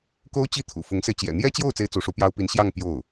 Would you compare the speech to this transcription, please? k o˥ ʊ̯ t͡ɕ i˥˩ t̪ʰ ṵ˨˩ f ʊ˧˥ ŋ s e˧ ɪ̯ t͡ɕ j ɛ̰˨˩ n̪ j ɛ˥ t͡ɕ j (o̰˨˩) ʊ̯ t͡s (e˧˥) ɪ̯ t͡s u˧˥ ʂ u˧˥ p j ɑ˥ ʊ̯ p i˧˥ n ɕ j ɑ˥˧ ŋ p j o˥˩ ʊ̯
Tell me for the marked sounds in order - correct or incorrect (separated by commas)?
incorrect, incorrect